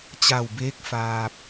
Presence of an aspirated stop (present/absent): absent